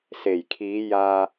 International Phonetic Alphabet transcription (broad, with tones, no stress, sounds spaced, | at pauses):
s e˨˩ j kʰ iː˨˧ j aː˧